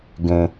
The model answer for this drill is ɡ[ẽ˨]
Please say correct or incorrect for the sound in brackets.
correct